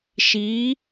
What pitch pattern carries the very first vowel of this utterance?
rising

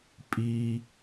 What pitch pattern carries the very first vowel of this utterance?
low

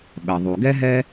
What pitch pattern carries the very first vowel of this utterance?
low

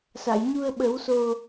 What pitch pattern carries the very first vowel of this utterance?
low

